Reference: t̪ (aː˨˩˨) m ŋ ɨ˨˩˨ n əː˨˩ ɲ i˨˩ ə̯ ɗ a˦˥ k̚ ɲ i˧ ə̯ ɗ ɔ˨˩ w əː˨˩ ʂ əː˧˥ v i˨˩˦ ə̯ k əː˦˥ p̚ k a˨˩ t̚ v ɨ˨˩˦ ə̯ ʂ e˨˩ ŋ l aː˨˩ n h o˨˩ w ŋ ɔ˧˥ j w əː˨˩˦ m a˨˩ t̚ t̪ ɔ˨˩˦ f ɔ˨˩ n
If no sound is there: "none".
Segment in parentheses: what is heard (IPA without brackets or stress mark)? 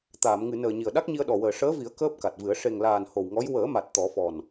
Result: aː˨˩˨